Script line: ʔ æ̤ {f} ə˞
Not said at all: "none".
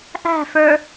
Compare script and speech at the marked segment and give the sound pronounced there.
f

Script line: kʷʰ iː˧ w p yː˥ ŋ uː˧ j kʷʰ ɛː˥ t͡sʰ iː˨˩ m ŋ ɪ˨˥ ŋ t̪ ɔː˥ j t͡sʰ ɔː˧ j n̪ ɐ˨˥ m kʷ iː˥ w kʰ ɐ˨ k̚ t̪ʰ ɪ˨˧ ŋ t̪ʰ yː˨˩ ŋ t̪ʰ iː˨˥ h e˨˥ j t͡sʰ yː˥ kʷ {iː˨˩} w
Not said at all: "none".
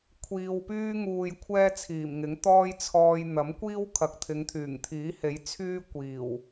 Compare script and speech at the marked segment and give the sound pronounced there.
iː˨˩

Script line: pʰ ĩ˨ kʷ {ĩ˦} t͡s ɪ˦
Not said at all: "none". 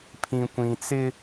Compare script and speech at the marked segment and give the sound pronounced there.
ĩ˨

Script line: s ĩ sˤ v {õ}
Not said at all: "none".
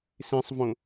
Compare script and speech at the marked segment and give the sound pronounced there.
õ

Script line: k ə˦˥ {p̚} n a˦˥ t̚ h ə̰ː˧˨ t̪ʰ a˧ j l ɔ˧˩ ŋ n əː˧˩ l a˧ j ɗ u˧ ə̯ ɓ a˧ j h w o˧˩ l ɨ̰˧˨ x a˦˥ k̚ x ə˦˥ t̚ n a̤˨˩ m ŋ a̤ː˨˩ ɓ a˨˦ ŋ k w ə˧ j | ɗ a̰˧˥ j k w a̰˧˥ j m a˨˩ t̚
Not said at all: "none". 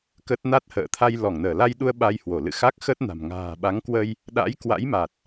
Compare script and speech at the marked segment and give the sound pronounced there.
t̚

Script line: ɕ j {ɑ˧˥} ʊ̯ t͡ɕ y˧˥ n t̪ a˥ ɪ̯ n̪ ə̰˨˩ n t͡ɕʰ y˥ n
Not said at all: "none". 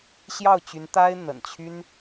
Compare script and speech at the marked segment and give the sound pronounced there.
ɑ˥˩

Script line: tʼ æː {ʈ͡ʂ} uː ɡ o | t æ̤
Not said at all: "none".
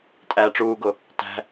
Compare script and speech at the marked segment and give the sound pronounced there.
ʈ͡ʂ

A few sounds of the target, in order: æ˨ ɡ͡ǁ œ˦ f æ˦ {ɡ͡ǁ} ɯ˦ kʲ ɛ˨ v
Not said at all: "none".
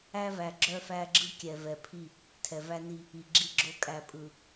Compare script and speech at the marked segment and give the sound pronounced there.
ɡ͡ǁ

